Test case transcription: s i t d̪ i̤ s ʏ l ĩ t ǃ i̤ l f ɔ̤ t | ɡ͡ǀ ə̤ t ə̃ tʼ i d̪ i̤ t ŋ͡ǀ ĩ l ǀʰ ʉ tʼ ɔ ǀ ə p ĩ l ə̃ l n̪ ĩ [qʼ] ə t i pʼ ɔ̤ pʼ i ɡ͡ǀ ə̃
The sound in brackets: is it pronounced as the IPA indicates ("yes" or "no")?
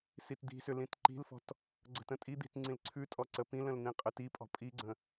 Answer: yes